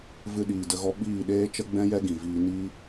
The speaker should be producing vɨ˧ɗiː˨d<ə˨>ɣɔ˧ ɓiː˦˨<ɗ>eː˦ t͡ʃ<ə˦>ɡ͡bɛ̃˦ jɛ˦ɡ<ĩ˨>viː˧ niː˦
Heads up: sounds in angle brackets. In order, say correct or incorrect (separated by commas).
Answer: incorrect, correct, correct, correct